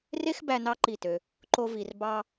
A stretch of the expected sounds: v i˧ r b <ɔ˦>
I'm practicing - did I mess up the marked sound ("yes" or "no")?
yes